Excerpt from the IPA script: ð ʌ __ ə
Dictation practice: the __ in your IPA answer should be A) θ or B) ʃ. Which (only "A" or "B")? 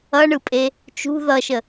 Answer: B